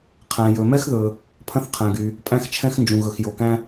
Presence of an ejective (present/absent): present